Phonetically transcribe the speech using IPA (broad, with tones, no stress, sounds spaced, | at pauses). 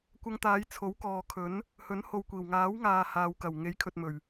kʷ ɐ˧ ŋ t̪ aː˨˧ j t͡sʰ o˨˥ w k ɔː˨ kʰ ɵ˨˥ n | h ɵ˨˥ n h o˧ w kʷ iː˨˩ w ŋ aː˨˥ w ŋ aː˨ h aː˨ w k ɐ˨˩ w ŋ e˨˥ j kʰ ɵ˨ t̚ m ɵ˨˩ ɥ